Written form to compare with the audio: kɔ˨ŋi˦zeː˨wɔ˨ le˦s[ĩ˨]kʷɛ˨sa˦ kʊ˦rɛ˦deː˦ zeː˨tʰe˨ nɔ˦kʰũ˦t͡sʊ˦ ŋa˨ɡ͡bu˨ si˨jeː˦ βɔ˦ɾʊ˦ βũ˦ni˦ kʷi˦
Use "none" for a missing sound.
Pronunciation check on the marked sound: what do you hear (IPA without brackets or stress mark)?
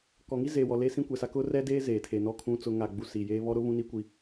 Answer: ĩ˦